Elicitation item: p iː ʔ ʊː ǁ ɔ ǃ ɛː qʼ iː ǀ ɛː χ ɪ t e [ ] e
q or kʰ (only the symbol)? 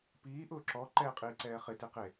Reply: q